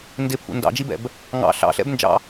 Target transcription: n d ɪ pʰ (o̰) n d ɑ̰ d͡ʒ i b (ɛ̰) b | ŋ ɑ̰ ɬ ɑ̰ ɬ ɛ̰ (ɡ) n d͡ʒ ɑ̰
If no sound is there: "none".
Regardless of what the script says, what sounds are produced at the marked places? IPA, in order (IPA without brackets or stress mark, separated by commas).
ṵ, ɛ̰, b